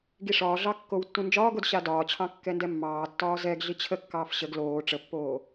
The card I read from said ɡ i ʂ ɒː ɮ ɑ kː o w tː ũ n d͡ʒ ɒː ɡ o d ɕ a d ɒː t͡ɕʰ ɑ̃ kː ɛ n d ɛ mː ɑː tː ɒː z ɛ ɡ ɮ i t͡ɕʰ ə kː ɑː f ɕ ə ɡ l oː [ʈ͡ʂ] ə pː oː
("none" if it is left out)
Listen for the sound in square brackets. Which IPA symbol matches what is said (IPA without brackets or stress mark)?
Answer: ʈ͡ʂ